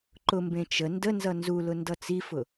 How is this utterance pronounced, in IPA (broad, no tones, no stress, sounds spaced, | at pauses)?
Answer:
ǃ ʊ m b ẽ t͡ʃ ə n d ə n z ʌ n z u l ʊ n d ʌ t͡s i f ʊ